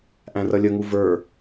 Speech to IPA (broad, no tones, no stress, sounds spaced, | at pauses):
ʔ æ̃ r ʌ lʲ ə ŋ u v ə˞